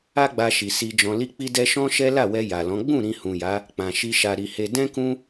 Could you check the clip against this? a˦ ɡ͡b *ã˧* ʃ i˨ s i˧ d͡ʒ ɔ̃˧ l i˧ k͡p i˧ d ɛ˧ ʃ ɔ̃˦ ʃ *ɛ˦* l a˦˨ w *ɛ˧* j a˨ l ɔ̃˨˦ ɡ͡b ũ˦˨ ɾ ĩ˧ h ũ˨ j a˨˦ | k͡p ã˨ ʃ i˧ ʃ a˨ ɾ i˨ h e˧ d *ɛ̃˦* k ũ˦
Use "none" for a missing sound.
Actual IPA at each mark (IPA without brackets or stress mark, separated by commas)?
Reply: a˧, ɛ˦, ɛ˧, ɛ̃˦